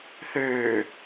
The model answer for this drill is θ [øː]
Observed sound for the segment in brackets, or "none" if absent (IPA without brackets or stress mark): øː